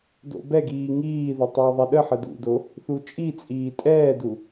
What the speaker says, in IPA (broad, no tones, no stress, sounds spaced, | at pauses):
d o̰ b ɛ ɡ iː ŋ iː ð ʏ tˤ ʏː ðˤ ɛ ɗ ə ħ ə d ṵ d o | θ u t͡ʃʼ i t͡sʼ iː tʼ ɛː d u